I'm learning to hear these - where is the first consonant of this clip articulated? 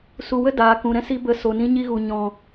tongue tip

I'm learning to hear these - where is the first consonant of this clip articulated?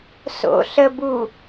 tongue tip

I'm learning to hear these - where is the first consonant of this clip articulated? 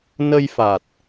tongue tip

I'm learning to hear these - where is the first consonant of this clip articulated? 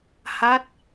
throat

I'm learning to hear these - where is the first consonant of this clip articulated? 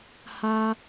throat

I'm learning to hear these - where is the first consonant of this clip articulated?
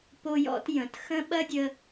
lips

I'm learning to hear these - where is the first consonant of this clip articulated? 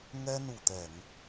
velum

